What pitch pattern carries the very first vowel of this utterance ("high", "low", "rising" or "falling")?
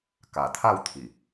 low